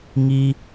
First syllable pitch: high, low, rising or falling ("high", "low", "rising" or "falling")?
high